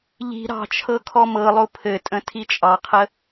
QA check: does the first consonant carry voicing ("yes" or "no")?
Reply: yes